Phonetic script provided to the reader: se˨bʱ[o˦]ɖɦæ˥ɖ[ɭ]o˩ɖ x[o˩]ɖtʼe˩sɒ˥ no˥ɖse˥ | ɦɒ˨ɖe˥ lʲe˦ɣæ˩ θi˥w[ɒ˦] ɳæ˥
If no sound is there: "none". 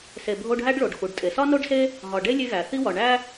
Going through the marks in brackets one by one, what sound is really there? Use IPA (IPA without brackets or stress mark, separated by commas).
o˦, ɭ, u˩, ɒ˨